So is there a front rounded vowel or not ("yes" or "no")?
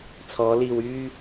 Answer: yes